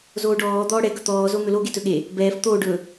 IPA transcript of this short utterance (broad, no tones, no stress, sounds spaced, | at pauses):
z oː ɖ ɔː d̪ ɔː ɽ ɛ ɡ ɵ t̪ ɔː z o n̪ ɵ l o ɡ e t ɵ ɠ e | b ɛː f t̪ oː ɖ ɵ